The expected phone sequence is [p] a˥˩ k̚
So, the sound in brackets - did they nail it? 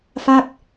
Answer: no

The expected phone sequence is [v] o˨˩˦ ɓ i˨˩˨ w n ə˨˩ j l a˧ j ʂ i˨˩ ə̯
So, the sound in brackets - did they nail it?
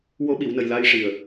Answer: no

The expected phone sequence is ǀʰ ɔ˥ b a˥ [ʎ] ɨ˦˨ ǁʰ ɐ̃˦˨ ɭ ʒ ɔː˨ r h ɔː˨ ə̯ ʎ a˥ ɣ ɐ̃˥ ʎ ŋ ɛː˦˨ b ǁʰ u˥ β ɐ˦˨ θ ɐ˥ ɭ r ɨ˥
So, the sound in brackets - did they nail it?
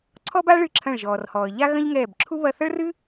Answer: no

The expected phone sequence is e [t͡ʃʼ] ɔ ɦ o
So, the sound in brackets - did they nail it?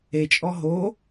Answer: yes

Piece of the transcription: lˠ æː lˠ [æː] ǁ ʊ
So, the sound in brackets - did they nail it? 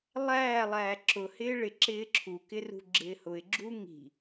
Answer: yes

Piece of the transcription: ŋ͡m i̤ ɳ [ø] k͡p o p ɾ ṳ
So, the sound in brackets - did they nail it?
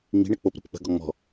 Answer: no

